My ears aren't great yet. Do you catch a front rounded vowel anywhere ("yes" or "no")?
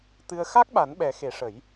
no